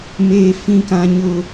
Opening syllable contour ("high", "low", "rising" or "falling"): high